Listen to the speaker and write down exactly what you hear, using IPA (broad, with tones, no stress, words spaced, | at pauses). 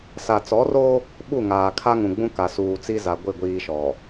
sa˨t͡sɔ˨˦ro˦ | ɓu˦˨ŋaː˨kʰa˦ ŋũ˨ɡ͡bũ˦ ka˨suː˨t͡si˦za˨ ɡʷɪ˦˨ɡʷiː˨ ʃɔ˨